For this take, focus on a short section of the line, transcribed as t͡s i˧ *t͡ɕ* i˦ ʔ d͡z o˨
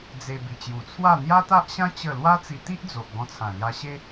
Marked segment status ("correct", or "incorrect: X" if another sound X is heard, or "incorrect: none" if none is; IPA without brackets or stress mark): incorrect: t̪